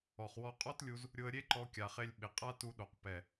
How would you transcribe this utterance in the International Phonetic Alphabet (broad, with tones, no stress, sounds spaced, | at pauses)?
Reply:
ɔ˨ χ w ɔ˧ qʼ ɔ˦ t lʲ u˧ z | ɾʲ ʊ˧ ə̯ ɾʲ e˦ ǃ ɔ˧ kʲ a˨ χ e˧ lʲ ɓ ɪ˨ qʼ a˦ t u˧ ɗ o˨ q p ɛ˨